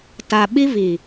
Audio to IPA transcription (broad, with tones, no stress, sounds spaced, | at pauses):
t a˨ ɓ i˦ v i˨